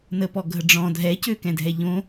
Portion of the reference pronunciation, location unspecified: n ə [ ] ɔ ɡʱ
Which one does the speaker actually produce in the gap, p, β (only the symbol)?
p